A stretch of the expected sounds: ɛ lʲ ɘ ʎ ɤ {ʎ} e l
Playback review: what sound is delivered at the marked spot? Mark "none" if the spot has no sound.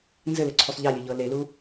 l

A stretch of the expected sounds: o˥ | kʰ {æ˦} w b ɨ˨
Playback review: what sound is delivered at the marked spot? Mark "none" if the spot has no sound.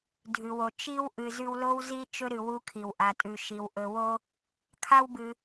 a˦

